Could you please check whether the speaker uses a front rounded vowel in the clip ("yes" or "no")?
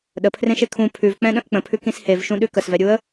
no